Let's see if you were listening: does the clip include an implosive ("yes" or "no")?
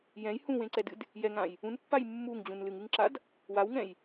no